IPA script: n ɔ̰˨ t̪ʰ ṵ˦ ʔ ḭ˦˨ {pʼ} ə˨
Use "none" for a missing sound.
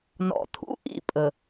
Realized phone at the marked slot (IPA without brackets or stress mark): pʼ